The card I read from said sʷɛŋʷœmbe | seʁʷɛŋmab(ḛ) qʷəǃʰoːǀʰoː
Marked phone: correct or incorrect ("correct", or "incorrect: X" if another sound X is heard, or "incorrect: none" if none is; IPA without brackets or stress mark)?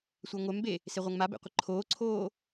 correct